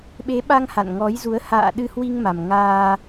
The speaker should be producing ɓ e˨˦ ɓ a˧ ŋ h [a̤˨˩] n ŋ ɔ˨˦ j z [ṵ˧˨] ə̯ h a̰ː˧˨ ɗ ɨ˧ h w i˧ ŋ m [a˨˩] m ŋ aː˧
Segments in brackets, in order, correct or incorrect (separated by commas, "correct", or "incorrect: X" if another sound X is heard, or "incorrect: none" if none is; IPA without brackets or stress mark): incorrect: a̰˧˨, incorrect: u˨˦, correct